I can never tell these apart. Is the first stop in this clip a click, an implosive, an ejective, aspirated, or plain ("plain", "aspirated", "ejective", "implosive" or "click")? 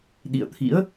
implosive